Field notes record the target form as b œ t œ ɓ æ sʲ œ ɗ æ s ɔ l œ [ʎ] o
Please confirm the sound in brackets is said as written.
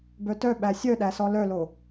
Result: no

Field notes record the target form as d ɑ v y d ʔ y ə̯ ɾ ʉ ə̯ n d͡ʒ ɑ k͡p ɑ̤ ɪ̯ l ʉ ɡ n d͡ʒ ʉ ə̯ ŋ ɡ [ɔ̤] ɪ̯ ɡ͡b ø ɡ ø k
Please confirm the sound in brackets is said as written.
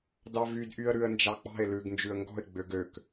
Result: yes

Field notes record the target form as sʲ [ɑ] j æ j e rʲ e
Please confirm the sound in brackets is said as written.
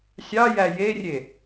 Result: yes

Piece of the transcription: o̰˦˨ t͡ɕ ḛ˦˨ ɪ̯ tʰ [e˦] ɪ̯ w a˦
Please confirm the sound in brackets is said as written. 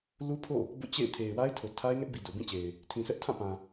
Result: no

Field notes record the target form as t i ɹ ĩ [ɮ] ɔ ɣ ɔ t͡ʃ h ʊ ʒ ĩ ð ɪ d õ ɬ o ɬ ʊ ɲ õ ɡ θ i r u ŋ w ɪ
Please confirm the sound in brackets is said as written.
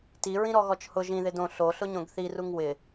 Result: no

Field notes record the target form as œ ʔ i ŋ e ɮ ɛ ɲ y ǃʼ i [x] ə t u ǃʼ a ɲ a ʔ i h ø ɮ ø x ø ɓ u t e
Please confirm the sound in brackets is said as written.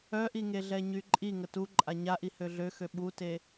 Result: no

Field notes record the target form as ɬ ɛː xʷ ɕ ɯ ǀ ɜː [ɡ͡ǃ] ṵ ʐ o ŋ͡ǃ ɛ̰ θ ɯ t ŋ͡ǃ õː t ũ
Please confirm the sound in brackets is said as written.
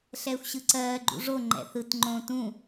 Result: yes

